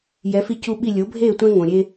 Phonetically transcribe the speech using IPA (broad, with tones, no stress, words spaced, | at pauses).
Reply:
jɛ˩˥fi˦cu˦ɓi˥˩ lʲo˩˥bʱeː˥˩tʷɛ̃˦ ŋõ˩ɾʲe˦